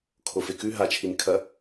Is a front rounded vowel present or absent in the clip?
absent